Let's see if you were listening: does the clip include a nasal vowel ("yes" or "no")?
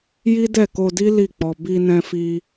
yes